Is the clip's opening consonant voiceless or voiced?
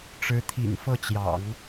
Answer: voiceless